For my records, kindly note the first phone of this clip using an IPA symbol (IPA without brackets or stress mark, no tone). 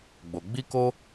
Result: ɡ͡b